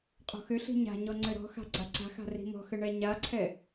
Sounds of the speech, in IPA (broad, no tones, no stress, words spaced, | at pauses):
qʼɔ̤xʏɬi̤ ɲa̤ɲɔ ŋ͡ǀɘɾɔ̤xa̤ ɡ͡ǀaǀa̤xa̤ ri̤mɔ̤xɘ ɳɛɲaǀʰɛ